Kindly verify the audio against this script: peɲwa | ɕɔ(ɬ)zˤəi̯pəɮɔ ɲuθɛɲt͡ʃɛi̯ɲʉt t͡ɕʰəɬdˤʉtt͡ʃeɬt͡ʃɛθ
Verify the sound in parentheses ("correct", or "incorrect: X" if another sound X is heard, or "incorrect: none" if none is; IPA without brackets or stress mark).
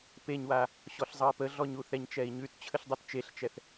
correct